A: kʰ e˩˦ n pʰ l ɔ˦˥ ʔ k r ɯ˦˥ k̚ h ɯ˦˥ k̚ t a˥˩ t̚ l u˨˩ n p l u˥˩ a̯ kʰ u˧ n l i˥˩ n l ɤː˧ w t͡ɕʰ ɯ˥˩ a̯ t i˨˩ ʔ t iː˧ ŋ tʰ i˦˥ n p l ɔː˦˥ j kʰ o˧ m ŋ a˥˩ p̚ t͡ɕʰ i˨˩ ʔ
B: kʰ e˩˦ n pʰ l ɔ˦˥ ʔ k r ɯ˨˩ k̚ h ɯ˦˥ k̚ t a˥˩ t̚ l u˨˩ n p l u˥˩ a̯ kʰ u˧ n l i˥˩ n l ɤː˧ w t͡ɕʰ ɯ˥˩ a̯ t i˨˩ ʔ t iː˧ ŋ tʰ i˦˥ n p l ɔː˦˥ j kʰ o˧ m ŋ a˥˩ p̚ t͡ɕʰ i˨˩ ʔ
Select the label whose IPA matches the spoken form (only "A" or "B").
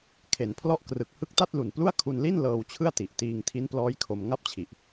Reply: B